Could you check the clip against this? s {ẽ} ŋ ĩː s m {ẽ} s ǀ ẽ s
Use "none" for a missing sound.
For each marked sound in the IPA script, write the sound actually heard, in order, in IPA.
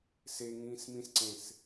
e, ĩ

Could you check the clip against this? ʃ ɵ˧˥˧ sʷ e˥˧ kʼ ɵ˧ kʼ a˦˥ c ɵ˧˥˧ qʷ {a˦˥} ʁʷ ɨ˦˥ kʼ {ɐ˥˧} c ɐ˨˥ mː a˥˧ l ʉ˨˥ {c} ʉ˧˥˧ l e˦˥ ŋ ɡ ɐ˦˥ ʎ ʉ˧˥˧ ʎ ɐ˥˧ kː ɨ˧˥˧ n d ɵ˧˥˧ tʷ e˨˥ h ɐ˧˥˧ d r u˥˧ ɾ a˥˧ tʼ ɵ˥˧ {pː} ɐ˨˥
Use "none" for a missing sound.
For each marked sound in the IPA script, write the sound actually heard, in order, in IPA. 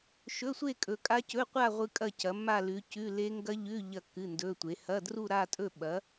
a˥˧, ɐ˥˧, c, ɓ

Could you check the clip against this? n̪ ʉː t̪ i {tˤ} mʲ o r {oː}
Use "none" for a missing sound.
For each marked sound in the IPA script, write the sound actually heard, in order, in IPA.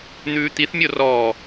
θ, ɔː

